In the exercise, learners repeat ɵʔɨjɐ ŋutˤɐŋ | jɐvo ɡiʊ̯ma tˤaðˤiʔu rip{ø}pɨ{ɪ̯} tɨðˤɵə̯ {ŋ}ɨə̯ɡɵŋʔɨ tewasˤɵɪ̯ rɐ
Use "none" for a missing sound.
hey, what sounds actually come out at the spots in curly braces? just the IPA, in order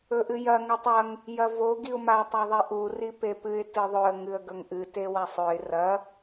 e, ɪ̯, ŋ

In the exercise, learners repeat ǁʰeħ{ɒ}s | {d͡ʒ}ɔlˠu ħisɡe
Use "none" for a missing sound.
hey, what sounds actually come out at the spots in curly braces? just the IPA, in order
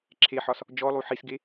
ɒ, d͡ʒ

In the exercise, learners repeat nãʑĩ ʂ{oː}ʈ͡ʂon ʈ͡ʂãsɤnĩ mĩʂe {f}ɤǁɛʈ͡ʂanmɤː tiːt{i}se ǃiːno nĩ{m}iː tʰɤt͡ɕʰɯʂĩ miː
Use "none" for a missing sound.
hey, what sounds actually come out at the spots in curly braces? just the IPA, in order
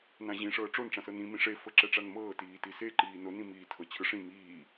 ɤː, f, i, m

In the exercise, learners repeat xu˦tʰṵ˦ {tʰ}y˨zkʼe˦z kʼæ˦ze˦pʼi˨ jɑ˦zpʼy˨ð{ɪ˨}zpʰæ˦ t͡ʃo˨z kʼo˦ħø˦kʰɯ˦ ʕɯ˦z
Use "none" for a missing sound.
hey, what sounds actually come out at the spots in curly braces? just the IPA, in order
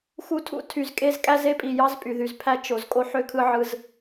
tʰ, y˨

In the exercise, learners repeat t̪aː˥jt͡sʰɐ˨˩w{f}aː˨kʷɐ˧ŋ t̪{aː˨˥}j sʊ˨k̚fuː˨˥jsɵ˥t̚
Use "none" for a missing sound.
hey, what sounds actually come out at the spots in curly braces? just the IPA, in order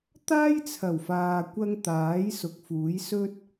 f, aː˨˥

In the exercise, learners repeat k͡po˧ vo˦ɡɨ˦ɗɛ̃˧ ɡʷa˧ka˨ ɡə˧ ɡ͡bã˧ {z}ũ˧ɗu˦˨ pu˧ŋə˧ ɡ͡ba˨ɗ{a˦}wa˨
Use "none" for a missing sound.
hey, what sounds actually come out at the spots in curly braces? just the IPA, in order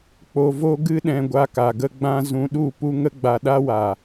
z, a˧

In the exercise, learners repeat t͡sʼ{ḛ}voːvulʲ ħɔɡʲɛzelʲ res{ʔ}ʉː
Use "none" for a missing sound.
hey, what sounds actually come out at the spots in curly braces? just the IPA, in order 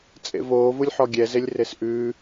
ḛ, ʔ

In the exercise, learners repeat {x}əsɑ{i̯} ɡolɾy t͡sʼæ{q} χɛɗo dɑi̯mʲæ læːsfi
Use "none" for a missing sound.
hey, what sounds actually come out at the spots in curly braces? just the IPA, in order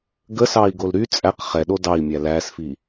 ɡ, i̯, q

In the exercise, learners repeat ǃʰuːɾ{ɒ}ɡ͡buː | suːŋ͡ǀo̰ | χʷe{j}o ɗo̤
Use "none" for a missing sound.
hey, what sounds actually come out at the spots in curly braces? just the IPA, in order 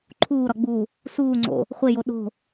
ɒ, j

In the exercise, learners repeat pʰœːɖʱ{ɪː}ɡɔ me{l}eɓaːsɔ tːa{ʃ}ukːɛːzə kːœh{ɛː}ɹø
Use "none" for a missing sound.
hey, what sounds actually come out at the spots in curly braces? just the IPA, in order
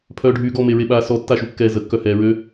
yː, ɹ, ʃ, ɛː

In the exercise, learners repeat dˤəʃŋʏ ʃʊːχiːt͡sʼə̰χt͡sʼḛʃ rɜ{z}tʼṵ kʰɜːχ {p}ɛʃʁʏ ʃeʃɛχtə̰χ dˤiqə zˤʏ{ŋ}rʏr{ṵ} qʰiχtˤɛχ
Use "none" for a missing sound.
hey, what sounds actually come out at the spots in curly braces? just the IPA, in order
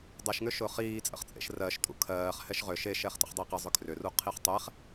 ʃ, h, kʰ, u

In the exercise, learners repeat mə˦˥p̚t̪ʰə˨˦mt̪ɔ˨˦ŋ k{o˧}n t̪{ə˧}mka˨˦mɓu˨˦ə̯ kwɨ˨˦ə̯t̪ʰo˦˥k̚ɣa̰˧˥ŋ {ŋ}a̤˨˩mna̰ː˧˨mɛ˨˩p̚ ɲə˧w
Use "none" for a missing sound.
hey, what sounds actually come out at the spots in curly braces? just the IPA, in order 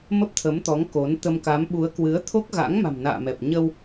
o˨˦, ə˧, m

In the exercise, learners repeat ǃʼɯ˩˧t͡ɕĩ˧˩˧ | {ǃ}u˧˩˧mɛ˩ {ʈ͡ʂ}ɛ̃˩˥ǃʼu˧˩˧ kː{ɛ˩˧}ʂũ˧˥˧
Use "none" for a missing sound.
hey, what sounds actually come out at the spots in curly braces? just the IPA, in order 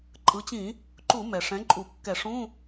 ǃ, ʂ, ɛ˧˩˧

